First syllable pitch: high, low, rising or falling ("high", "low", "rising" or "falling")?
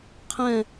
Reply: falling